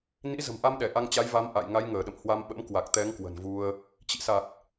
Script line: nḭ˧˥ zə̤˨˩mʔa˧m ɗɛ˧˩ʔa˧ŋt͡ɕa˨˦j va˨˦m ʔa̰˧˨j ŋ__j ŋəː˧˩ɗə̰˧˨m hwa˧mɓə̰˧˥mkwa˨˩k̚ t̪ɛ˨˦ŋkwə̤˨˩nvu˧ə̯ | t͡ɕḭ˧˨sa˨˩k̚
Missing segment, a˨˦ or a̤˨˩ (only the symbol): a˨˦